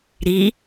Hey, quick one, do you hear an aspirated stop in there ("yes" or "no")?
no